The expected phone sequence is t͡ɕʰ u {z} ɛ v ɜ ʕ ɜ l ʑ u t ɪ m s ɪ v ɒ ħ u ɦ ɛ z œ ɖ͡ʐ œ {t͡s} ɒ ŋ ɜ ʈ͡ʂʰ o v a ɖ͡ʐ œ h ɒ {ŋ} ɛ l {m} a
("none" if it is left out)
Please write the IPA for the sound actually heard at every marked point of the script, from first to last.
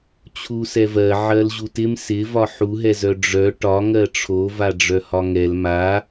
s, ʈ, ŋ, m

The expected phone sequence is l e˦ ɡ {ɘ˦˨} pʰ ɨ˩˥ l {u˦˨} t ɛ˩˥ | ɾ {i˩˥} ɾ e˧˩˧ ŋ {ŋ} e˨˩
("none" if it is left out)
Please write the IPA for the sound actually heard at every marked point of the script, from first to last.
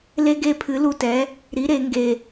e˦˨, u˦˨, i˩˥, ɡ

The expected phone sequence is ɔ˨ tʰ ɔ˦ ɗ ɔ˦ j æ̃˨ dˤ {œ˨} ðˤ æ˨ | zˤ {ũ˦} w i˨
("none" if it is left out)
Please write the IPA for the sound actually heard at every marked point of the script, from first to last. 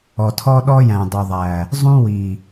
ø˨, ũ˦

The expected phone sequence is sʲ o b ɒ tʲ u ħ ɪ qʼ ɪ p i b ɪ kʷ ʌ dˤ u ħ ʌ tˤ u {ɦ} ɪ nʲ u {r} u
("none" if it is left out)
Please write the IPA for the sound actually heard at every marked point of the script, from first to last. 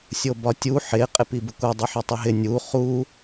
ɦ, χ

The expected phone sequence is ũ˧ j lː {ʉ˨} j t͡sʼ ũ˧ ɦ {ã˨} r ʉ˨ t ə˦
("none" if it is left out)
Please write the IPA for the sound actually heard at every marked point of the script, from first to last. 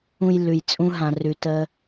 ʉ˨, ã˨

